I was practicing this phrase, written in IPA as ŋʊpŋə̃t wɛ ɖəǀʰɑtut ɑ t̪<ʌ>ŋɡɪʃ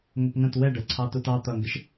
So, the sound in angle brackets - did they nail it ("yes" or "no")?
yes